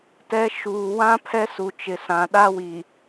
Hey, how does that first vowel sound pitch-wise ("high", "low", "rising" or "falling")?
high